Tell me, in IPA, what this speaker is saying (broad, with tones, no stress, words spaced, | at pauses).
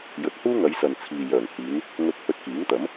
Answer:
jɵ˨t̚huː˥ŋɐ˨˧jsɐ˨n t͡sʰiː˨jœː˨˩ŋhiː˨˧n | ŋɵ˧t̚hɵ˧t̚ kiː˨˥ŋt̪ɐ˨˥m